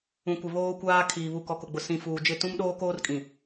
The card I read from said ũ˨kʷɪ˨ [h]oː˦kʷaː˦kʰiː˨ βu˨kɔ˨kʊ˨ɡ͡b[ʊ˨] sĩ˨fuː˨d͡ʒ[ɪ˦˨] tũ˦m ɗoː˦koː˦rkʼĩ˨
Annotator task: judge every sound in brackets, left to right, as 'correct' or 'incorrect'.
incorrect, correct, correct

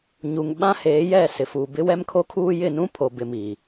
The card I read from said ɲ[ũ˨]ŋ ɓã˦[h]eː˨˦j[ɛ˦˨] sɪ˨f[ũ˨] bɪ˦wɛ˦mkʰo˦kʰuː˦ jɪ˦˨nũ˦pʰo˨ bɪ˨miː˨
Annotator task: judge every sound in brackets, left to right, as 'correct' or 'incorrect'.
incorrect, correct, correct, incorrect

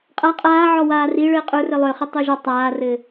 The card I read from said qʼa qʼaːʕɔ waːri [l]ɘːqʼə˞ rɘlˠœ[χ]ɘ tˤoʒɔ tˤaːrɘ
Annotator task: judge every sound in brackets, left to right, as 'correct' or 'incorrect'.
incorrect, correct

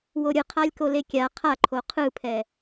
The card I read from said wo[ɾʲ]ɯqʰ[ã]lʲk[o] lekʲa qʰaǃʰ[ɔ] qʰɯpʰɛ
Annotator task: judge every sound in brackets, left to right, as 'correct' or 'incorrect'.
correct, incorrect, correct, incorrect

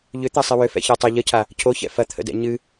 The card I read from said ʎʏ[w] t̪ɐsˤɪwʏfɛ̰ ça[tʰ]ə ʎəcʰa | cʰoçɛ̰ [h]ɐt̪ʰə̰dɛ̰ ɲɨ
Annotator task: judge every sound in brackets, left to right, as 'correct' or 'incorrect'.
incorrect, incorrect, incorrect

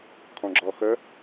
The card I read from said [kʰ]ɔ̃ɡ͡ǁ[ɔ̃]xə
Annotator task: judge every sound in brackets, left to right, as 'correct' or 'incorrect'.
correct, incorrect

